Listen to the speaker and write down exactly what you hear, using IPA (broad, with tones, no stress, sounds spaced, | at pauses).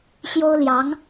ɕ j o˥ ʊ̯ l j ɑ˧˥ ŋ